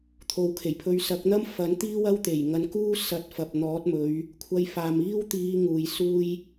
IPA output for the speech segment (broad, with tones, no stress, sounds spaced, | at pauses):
t̪ʰ o˨ w kʰ e˨˩ j pʰ ɵ˧ ɥ s ɐ˨˥ k̚ n̪ ɐ˥ m f ɐ˨˥ n t̪ iː˥ w ɐ˥ w t̪ e˨˩ j ŋ ɐ˧ n k uː˥ s ɐ˨˥ t̚ f ɐ˨ p̚ n̪ ɔː˨˥ t̚ m ɵ˨˧ ɥ | kʷʰ ɐ˧ j f aː˨ m iː˥ w t̪ iː˧ ŋ uː˨ j s uː˥ j